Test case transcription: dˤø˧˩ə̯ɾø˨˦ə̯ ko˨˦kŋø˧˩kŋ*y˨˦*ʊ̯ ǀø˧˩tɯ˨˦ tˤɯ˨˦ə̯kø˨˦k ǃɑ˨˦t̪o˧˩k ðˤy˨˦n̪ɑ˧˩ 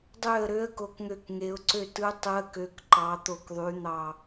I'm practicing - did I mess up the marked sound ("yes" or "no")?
yes